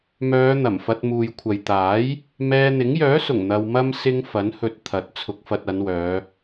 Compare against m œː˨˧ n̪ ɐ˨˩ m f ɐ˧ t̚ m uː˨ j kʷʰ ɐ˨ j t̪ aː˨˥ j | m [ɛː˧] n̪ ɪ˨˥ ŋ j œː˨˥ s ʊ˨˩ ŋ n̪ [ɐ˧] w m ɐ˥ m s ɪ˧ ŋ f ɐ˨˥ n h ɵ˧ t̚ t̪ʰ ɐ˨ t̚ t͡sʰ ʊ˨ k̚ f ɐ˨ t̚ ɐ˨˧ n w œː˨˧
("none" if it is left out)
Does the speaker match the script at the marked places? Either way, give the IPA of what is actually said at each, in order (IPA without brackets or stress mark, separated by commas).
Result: ɛː˧, ɐ˧